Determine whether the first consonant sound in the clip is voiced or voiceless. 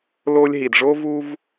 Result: voiced